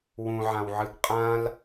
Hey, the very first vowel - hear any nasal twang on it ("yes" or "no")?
yes